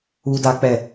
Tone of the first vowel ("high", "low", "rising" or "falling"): high